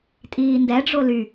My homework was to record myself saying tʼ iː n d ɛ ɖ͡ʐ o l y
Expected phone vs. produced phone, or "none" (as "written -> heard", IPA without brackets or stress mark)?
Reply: none